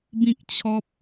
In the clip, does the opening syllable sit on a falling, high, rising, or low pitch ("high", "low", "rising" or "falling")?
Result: high